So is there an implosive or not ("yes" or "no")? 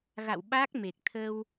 yes